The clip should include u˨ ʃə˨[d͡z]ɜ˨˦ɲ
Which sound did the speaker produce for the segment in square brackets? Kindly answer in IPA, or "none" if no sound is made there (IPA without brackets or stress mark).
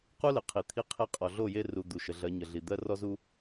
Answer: ɮ